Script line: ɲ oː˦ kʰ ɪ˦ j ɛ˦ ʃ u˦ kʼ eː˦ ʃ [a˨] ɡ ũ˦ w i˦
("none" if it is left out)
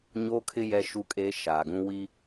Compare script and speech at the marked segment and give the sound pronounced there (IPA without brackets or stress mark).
aː˨